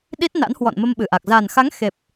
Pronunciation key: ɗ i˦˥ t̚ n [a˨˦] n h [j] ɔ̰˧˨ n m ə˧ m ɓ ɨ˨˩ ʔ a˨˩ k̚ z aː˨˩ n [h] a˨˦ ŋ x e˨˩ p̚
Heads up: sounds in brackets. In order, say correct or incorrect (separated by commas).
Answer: incorrect, incorrect, incorrect